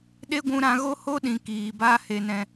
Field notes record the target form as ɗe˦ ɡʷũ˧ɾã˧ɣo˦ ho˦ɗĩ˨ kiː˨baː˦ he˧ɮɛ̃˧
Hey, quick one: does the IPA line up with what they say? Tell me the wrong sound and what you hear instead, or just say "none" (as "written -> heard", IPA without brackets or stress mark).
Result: ɮ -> n